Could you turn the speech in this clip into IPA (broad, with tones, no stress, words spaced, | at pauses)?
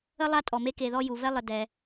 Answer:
ə˥lˠa˥tʼɔ˩me˦ ke˨ðɔ˦ ju˩vɛ˥lˠə˨ dɛ˨